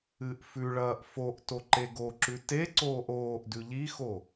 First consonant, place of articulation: glottal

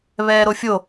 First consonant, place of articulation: labial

